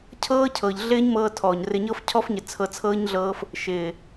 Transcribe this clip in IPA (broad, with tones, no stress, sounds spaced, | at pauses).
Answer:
cʰ ɤː˦ cʰ ɤ˨ ʎ ɮ ɪː˦ ɲ m ɤː˧ tʰ ɔː˨ ɲ r ɪ˨ ɲ ɤ˧ f cʰ ɔ˧ f ɲ ɪ˨ t͡sʰ ɤ˧ t͡sʰ ɤː˦ ɲ ɮ ɤː˦ f | ʃ ɪː˨